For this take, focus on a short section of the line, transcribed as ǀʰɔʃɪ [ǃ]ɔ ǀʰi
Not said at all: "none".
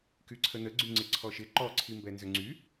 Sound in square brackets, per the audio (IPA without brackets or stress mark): ǃ